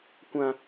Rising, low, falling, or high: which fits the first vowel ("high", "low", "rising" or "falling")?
high